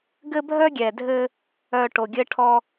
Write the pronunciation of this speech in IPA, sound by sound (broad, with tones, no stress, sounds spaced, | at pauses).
ɡ ɘ˦ bʱ œ˦ ɡʲ ɛ˨ dʱ ɘ˦ | œ˨ ʈ o˨ ɡʲ ɘ˦ ʈʰ ɔ˦